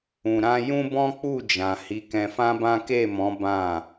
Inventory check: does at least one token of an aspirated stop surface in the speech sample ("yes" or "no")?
no